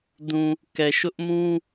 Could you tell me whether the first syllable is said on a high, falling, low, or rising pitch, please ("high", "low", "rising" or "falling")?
low